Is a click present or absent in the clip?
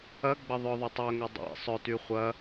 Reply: absent